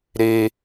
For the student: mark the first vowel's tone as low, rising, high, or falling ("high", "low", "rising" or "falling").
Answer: high